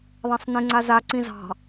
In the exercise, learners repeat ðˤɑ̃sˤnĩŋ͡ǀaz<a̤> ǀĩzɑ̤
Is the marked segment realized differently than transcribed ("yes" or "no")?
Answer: yes